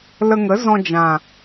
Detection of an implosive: absent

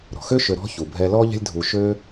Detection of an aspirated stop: absent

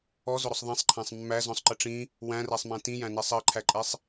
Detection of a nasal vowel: present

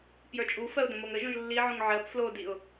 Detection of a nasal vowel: present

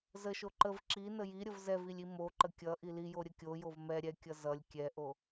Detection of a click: present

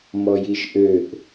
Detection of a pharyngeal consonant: absent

